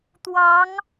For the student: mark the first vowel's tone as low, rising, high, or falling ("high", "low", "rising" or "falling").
rising